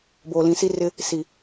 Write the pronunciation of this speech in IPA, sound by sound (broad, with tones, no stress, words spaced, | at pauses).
boː˨lĩ˨˦si˦rɪ˦ | si˨